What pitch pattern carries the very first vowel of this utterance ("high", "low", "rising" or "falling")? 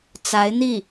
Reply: rising